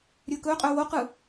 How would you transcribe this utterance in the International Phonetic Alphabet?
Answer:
ɾʲ ɵː k ɵː qʼ ɵː w o q ɯ

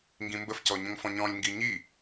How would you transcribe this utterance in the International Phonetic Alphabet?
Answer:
ŋ ɡ ĩ m b ə f c ɔ ɲ ə̃ ŋ f ɔ̃ ɲ ɔ̃ lʲ ŋ ɡ i ɲ i

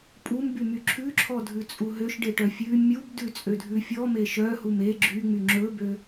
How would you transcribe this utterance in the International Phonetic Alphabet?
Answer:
pʼ u m b y m y ǁʰ ʉ ǁʰ ɔ dʱ ʉ t͡sʼ u ɦ ø ʃ ɖ e ʈ œ fʲ ʉ mʲ u b d ʉ t͡sʼ ø dʱ ʉ fʲ ɔ m e ʃ œ h u m e ɡ͡ǁ y ŋ͡m y ŋ͡ǁ ɵ b ø

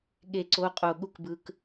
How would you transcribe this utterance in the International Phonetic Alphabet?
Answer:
ɠ e˧˩ ǀ o˨˥ qʼ o˧˩ ɠ u˥˨ k b ɯ˧ k

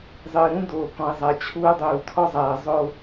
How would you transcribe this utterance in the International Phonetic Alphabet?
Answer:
zˤ ɨː˨ ɾ ũ˦ d oː˨ k ɔ̃˨ i̯ zˤ a˨ t͡ɕʰ uː˦ dˤ uː˨ tʰ ɔ˦ zˤ aː˨ zˤ o˦

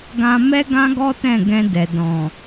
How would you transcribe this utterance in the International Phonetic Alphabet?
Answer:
ɡ ã˧ m ɛ˦ ɡ ã˦ ɡ ɔ˦ t ɛ̃˦˨ ɡ ɛ̃˧ d ɛ˨ d ɔ̃˨

